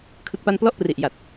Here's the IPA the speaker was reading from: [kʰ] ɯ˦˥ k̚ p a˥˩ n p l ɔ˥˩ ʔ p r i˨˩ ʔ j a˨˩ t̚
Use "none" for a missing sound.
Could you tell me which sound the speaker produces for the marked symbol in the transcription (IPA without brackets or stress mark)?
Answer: kʰ